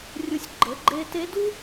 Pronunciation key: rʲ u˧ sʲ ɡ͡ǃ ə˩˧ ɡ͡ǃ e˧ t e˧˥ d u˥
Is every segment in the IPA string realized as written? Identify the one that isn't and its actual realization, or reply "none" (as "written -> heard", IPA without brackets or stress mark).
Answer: none